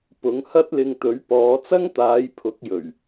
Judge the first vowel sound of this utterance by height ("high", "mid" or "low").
high